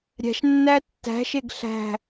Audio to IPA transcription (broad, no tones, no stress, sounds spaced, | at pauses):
ɾʲ æ̤ ʃ nː æ tː æ̤ ʃ e ɡ ɬ æ̤